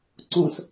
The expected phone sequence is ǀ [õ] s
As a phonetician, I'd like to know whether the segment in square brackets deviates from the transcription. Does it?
no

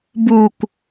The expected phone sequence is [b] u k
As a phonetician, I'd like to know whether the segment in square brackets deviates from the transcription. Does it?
no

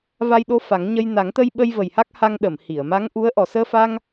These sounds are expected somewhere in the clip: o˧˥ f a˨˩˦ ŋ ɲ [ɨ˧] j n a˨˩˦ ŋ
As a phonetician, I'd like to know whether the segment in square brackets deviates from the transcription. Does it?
yes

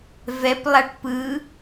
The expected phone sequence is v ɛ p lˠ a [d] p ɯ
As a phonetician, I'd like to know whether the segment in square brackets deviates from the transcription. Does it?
yes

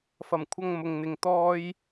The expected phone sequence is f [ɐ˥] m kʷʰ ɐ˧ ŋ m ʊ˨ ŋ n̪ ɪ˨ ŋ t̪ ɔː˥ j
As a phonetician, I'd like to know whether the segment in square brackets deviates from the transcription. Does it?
yes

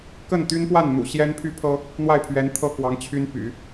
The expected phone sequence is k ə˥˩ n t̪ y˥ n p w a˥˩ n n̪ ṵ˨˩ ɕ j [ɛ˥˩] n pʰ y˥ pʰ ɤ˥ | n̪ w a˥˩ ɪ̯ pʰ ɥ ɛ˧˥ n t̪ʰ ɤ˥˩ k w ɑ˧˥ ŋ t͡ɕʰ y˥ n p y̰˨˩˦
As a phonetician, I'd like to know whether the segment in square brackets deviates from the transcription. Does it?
yes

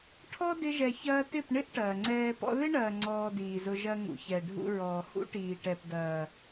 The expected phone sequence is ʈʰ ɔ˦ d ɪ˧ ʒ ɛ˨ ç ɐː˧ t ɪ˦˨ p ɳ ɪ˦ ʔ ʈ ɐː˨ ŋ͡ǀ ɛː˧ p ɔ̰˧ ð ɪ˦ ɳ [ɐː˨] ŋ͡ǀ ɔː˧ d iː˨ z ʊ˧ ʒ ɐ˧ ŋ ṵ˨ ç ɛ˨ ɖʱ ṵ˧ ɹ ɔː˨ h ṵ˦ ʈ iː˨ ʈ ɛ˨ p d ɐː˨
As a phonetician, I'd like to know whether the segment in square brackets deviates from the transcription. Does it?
no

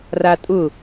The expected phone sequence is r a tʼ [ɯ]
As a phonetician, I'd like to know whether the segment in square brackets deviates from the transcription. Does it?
yes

